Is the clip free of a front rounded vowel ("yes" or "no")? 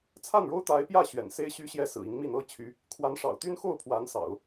no